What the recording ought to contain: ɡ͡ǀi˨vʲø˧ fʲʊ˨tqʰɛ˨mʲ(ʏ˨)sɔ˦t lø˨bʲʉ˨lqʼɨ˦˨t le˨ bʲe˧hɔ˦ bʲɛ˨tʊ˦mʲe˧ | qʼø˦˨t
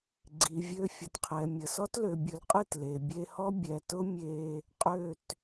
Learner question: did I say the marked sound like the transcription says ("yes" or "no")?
no